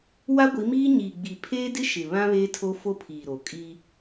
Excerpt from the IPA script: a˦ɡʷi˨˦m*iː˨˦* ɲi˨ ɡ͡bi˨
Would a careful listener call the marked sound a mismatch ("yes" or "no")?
yes